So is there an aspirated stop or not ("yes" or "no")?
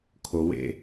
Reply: yes